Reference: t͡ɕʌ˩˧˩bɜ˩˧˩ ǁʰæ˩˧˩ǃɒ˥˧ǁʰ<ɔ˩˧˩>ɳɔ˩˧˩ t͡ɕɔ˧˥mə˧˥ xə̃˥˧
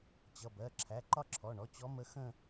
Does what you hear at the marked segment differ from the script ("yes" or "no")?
no